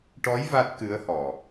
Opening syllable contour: rising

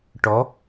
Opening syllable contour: rising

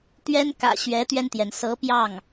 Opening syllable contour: high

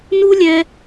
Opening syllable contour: high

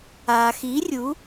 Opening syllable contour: low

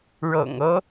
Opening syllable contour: low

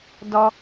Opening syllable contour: high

